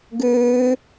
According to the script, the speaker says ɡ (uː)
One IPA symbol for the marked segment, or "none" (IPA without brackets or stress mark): ʉː